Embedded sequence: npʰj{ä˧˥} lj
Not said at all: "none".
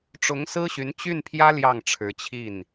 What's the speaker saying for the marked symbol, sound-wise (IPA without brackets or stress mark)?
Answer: ä˥